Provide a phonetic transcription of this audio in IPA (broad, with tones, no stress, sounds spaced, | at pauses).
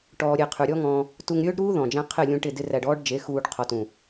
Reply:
ʈ ɔː˧ ɾʲ e˧ qʰ ʉ˨ ɾʲ ɔ˦ ŋ ɔ̃ː˧ | t u˧ ŋ ɾʲ ɵː˦ ɖ ɾ uː˦ ð ɔ̃˨ d͡ʒ æ̃˦ qʰ ɪ˦˨ lʲ ũ˧ ʈ ɪ˦˨ d ɪ˦ r æ˧ ɖ ɔː˦ ɖ d͡ʒ e˨˦ x uː˧ ɖ qʰ ɔ˧ t ũ˨